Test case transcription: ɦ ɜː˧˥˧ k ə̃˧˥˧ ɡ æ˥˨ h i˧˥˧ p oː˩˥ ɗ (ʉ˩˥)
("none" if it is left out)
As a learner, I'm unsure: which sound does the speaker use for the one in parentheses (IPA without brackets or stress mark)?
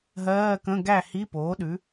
ʉ˩˥